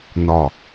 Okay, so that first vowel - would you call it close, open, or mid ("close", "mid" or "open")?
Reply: open